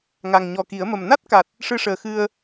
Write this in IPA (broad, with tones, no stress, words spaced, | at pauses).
ŋa˨˩ŋɲɔ˨˩ki˨˩˦ə̯mə˨˩m na˦˥t̚ka˨˩t̚ | ʂɨ˧ʂəː˨˩ xɨ˧ə̯